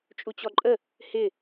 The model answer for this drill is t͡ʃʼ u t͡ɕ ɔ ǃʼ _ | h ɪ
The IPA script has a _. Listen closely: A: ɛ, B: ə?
B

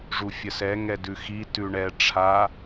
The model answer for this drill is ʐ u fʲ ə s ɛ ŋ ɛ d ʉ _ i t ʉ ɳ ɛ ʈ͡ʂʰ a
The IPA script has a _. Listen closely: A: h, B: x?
B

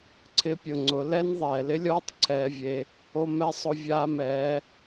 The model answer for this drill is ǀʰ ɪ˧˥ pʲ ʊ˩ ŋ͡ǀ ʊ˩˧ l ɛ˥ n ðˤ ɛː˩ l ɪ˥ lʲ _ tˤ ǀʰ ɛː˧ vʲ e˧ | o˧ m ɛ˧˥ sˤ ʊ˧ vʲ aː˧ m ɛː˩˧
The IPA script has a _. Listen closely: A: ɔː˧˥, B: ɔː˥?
B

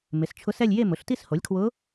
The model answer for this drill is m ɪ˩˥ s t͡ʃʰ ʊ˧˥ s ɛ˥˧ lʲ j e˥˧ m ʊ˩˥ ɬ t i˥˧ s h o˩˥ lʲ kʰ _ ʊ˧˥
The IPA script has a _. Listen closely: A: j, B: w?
B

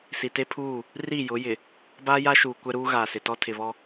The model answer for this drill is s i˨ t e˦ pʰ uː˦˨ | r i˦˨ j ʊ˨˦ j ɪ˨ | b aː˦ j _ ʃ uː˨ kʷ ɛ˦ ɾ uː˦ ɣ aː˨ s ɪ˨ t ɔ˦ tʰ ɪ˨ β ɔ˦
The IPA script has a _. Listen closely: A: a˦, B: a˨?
A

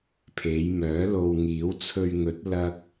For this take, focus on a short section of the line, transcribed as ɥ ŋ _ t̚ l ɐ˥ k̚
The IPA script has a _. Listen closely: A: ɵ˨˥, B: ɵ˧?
A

